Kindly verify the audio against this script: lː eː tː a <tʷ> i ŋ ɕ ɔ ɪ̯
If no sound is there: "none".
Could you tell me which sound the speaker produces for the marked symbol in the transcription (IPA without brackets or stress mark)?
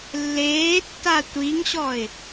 tʷ